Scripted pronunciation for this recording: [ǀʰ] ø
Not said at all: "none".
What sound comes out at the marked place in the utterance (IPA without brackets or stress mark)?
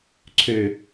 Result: ǀʰ